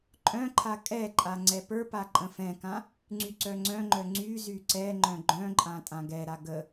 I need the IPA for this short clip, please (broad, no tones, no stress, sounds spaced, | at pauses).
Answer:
ǃʼ œ̃ ǃʰ a kʼ ɛ ǃʼ a ŋ͡ǀ ɛ p ə˞ p a ǃʼ ə̃ f ɛ̃ k ã | ŋ͡ǀ y ǀ œ ŋ͡ǀ œ̃ ŋ͡ǃ œ ŋ͡ǀ y z y ǀ ɛ ŋ͡ǃ œ̃ ɡ͡ǃ œ̃ ǃʼ ã tʼ ã ɡ ɛ ɾ a ɡ ə